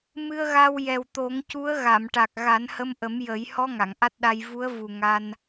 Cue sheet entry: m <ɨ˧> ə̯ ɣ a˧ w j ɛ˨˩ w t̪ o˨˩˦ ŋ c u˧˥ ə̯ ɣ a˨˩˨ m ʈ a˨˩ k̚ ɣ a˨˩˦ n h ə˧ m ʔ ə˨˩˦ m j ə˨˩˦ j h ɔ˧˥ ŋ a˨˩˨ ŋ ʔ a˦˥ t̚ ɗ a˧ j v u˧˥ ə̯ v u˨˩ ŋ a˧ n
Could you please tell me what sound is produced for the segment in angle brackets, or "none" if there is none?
ɨ˧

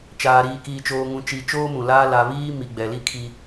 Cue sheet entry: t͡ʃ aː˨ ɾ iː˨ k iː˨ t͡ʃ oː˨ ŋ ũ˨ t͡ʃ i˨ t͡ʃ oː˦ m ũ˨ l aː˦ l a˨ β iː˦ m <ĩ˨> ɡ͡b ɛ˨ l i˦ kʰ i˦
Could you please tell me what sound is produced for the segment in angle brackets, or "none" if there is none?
i˨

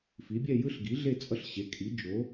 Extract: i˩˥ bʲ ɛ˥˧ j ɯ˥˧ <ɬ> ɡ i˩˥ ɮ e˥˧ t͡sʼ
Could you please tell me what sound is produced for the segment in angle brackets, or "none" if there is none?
ɬ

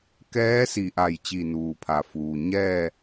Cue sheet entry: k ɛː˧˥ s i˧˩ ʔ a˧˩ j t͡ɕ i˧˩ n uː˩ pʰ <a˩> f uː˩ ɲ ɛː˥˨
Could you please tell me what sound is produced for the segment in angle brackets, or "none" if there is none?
a˩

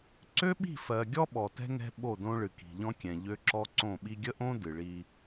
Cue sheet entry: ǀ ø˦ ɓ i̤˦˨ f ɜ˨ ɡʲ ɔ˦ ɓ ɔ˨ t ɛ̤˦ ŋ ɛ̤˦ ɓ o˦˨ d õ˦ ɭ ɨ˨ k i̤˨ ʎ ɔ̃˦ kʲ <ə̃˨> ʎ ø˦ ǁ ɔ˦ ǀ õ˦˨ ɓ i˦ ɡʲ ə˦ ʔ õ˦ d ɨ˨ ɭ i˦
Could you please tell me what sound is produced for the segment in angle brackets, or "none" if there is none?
ɛ̃˨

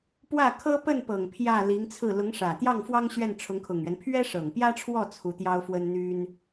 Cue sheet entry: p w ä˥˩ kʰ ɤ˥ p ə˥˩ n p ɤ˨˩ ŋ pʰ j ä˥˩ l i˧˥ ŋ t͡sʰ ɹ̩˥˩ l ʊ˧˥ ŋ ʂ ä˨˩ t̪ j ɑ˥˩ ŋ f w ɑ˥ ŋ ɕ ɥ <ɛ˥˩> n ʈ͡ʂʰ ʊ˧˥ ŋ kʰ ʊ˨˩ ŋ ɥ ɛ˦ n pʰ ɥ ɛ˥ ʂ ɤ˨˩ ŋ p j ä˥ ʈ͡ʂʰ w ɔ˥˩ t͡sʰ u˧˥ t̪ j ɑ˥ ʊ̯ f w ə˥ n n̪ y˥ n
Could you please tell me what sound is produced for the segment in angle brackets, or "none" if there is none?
ɛ˥˩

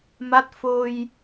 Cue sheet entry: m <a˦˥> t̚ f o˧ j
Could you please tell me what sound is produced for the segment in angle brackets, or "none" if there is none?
a˦˥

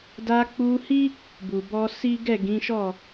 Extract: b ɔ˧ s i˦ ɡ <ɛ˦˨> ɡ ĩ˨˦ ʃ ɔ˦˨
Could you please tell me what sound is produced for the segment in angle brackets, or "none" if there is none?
ɛ˦˨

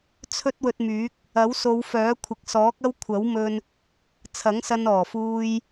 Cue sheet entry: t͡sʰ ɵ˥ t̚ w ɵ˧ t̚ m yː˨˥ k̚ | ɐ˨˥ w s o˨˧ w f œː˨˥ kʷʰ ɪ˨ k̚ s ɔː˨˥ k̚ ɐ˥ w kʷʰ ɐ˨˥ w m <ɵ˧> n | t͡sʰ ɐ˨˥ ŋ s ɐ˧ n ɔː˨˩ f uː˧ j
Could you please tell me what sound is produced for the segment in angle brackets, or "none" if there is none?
ɵ˧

